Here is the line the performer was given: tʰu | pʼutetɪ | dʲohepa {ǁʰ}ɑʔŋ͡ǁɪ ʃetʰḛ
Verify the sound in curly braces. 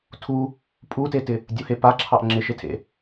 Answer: correct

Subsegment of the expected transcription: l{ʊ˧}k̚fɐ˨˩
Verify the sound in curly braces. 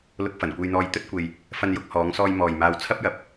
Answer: correct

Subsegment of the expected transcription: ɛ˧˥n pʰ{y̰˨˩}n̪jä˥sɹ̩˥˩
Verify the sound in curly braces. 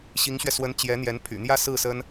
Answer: correct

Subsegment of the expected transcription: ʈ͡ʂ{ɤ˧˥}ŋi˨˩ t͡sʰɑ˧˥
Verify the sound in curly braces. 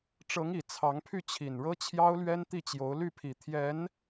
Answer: correct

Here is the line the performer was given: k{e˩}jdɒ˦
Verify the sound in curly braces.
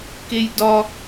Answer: incorrect: e˦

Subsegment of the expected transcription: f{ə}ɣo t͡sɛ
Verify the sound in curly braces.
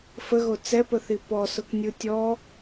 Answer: correct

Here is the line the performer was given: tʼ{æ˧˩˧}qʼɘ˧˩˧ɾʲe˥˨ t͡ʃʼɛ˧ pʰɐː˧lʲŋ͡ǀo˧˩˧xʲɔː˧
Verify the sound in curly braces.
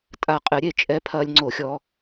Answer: incorrect: a˧˩˧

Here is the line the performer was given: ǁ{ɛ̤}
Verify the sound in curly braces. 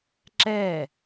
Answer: incorrect: ɛ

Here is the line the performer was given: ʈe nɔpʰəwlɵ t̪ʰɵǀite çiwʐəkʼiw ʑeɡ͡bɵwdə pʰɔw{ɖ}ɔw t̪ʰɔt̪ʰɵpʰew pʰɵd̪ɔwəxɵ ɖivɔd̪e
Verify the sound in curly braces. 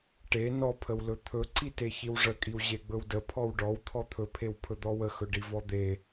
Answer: correct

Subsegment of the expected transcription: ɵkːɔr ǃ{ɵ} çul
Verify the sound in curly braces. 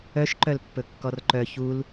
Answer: incorrect: œ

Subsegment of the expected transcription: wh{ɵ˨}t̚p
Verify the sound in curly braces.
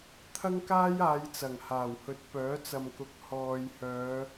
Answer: incorrect: ɵ˨˥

